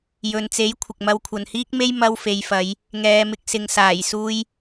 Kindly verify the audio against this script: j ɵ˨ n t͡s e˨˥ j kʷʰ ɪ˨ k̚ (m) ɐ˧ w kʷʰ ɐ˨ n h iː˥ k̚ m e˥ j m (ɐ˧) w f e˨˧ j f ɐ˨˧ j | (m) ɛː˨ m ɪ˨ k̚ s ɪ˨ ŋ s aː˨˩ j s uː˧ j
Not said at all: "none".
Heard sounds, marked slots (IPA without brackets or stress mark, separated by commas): m, ɐ˧, ŋ